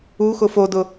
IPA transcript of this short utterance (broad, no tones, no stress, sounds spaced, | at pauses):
u x ʊ f o d ʊ